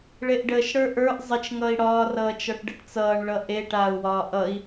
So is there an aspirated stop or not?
no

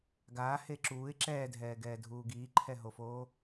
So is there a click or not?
yes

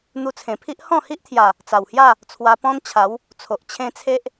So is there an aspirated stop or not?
yes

